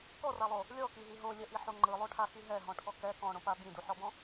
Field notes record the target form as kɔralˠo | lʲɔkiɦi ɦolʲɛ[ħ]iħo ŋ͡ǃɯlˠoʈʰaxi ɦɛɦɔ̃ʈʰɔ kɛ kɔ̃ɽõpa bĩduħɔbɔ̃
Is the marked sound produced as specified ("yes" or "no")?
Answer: no